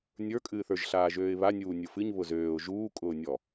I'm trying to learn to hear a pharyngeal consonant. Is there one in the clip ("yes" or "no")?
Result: no